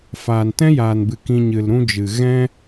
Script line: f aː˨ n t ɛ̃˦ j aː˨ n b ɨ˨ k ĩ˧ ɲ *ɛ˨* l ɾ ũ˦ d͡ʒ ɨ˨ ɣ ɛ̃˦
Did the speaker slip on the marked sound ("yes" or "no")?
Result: yes